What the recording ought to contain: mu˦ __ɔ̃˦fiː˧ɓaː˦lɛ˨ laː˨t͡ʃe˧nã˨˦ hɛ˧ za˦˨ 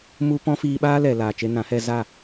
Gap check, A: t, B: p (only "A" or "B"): B